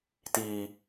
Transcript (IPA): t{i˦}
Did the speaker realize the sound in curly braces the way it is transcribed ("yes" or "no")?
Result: no